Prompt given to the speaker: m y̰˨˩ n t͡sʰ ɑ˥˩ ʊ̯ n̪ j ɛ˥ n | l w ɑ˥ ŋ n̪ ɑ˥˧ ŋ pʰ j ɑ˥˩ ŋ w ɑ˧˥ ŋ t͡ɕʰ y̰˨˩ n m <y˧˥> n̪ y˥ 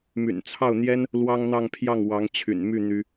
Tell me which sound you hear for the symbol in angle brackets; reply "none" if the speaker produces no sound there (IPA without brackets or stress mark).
y˥˩